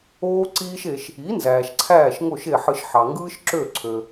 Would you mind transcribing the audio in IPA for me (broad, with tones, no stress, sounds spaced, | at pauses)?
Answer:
oː˧ ǀ iː˧ ʃ e˩ ʃ | i˩˥ n z æː˩ ʃ ǀʰ æː˥˩ ʃ ŋ o˥˩ ʃ e˥˩ ħ ɯ˧ ʃ ħ ɑ˩ ŋ ɡ ɯː˥ ʃ ǁ ø˥˩ ǀʰ ø˩